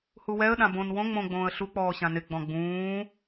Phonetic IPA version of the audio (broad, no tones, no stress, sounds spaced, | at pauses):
h u w ɛ ə̯ ɗ ã b õ n w õ ŋ͡m õ ɡ͡b õː ə̯ ɬ u k͡p ɔː ɕ ã n ɪ ɡ͡b ɔ̃ ɡ͡b ũː